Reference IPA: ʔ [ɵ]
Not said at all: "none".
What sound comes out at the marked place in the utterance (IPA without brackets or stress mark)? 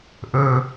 ɵ